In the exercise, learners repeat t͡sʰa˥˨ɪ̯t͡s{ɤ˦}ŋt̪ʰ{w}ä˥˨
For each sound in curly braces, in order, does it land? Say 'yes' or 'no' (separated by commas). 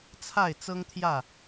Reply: yes, no